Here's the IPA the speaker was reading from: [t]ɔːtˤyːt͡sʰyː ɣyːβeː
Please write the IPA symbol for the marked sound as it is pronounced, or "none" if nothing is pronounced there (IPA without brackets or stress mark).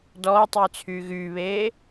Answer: d